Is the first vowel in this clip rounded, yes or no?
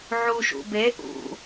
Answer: yes